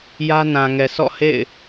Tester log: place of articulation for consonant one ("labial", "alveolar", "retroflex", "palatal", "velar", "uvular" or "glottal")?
palatal